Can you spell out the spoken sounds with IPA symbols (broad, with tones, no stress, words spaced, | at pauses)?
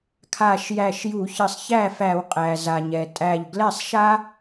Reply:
kʰa˧˩ʃjæ˧˩ʃju˧˩˧çɘ˧˩sˤ çæ˥˩fæ˧˩˧w qʼæ˩za˩ɲɛ˩tʼæ˧˩ʎ ɡlɛ˥˩sˤʃa˥